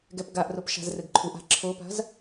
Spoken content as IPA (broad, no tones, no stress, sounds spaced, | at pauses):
ɡ ɛ p ɡ a ʔ r o p ʃ a̤ z r ɘ ɡ ǃʰ u ʔ a̤ ǁʰ o p a̤ z